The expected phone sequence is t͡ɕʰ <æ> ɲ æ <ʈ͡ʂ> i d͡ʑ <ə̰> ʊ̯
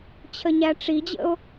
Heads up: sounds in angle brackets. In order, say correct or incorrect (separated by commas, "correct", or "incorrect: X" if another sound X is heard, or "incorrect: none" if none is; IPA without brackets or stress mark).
incorrect: ə, correct, correct